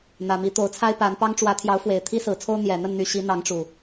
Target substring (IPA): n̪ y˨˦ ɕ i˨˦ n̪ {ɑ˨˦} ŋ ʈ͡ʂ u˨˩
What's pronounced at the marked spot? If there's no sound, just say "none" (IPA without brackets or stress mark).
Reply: ɑ˨˦